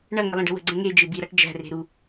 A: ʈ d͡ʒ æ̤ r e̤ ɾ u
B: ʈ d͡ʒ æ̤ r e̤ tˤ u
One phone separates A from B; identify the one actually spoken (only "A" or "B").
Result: A